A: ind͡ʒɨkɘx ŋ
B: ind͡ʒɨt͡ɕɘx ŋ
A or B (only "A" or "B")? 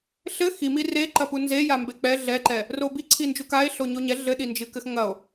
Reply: A